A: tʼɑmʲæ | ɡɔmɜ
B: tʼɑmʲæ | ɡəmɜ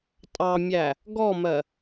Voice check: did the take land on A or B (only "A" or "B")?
A